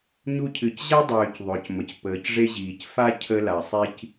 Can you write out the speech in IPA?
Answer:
ɲ u˧ cʰ ɨ˩ c ʑ a˥ dˤ øː˩ c ðˤ ø˩ c m ə˩ c p əː˩ c ʐ e˧ ʑ iː˩ c f a˥ cʰ ə˧ l a˩ sˤ i˧ c

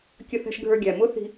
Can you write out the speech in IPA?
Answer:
kʲ ə˧ θ ɛ̤˧ ʃ ɡʱ ə˞˧ ɡʲ æ˨ m ʊ˦ θ i̤˧

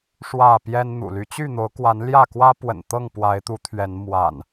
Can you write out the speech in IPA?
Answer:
ʂ w ä˥˨ p j ɛ˦ n n̪ ṵ˨˩ l y˨˦ t͡ɕ y˥˨ n̪ o˨˦ ʊ̯ k w a˨˦ n l j ä˥˨ k w ä˦ p w ə̰˨˩ n t̪ ɤ˥˨ ŋ p w a˨˦ ɪ̯ t̪ u˨˦ t̪ʰ ɥ ɛ˨˦ n m w a̰˨˩ n

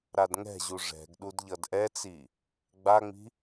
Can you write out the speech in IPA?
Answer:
ɾ a d ŋ ɛ̤ ʑ u ʐ ɛ̤ ɡ ɗ u d ʎ ʌ d ʔ ɛ t͡s i | ɡ͡b a ŋ͡m i̤

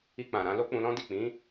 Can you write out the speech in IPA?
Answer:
i˧ k͡p ã˨ ɾ ã˧ l o˦ k͡p ũ˧ l ɔ̃˦ d i˦˨ k͡p ĩ˨˦

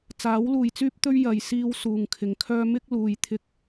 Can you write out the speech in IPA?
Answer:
t͡s aː˨˥ w l uː˨ j t͡s yː˥ p̚ t̪ ɵ˥ ɥ j ɐ˨ j s iː˧ w s uː˨ ŋ kʰ ɪ˨ ŋ kʰ œː˥ m ɪ˥ k̚ l uː˧ j t̪ʰ ɪ˥ k̚

